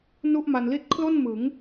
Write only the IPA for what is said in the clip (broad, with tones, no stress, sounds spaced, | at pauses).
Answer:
n u˥˩ ʔ m a˧ n l i˥˩ t̚ kʰ l o˥˩ n m ɯ˩˦ ŋ